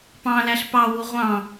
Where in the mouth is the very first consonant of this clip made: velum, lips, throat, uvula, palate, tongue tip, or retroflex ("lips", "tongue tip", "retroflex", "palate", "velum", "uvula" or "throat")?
lips